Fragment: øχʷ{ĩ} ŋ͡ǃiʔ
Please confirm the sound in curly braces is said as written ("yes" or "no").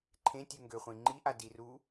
yes